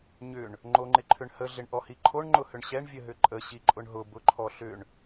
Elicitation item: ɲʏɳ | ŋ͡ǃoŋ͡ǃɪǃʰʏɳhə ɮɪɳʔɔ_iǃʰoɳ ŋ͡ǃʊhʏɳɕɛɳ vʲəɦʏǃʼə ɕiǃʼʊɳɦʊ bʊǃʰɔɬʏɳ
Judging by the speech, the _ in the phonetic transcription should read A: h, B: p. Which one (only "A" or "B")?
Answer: A